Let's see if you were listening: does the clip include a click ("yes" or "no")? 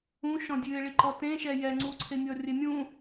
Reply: yes